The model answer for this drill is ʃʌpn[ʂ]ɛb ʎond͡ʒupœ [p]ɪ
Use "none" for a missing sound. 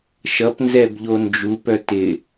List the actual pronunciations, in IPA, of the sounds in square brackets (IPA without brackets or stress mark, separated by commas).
z, t